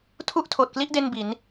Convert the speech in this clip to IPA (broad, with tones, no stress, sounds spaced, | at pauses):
tʰ u˥˩ ʔ tʰ oː˨˩ t̚ k l i˦˥ ʔ d e˥˩ n b i˩˦ n